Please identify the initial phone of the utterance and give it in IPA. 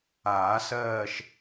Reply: aː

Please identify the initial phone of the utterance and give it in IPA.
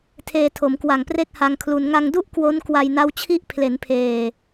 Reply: tʰ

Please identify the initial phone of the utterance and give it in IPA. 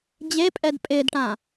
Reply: d͡ʑ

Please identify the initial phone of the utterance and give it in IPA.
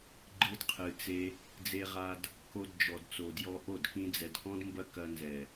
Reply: ɡ͡ǃ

